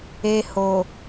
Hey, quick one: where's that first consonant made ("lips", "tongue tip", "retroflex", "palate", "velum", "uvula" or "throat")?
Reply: throat